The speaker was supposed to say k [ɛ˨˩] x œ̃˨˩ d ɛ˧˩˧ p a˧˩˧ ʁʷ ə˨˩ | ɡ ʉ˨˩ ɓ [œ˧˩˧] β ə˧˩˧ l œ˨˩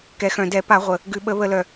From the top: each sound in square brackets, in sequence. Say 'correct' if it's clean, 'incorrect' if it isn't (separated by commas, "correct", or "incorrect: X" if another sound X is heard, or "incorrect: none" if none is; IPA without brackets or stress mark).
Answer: correct, incorrect: ə˧˩˧